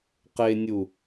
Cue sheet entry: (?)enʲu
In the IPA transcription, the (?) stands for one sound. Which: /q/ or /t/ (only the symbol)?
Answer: q